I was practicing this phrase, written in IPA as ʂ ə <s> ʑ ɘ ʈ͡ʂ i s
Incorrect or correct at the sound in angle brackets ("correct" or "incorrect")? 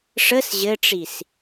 correct